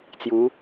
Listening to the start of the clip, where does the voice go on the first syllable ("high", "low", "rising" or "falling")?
rising